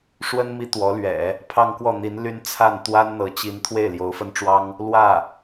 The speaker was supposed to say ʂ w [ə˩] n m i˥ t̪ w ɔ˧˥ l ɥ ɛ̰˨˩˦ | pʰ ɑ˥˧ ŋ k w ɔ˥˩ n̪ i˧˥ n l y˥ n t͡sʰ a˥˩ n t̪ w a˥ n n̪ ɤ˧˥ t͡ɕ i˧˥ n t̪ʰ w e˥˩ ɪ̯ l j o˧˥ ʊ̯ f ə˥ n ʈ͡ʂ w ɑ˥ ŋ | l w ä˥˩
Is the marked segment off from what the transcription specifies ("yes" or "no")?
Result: yes